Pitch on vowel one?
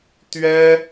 high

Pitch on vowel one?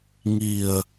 low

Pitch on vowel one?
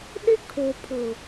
high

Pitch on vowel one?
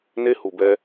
high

